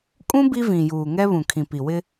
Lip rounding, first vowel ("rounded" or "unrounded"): rounded